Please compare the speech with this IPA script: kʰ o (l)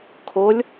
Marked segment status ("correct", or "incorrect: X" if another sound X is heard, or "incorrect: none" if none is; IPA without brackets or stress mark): incorrect: lʲ